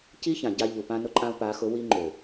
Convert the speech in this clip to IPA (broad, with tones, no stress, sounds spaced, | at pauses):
c i˦ ç ã˨ ɟ a˦ ʎ u˨ p ã˦ n ʊ˦ ǃʼ ã˦ u̯ p a˨˦ x ʊ˨˦ w i˦ ŋ͡ǃ ø˨